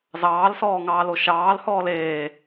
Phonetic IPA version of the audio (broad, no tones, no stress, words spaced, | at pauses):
zɑːlsɔːŋɑːlo ʃɑːlhɔːl eː